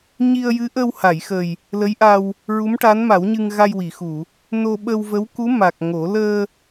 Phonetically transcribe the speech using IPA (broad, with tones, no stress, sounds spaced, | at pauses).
ɲ i˧ ə̯ j ɨ˧˥ ʔ ə˧ w h a˨˩˨ j x ə˨˩ j | l ə˧˥ j ʔ a˧ w | ɹ u˧˥ m ʈ a˧˥ n m a˨˩˦ w ɲ ɨ˧ ŋ ɣ a˧ j w i˨˩˨ x u˨˩˨ | n o˧ ɓ ə˧ w v ə˧˥ w k u˧˥ m a˨˩ k̚ ŋ o˨˩˦ l əː˧